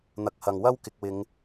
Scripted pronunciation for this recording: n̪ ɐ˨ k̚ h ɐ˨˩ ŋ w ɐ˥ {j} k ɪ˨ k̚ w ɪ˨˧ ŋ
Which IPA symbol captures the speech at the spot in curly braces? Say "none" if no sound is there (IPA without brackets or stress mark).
w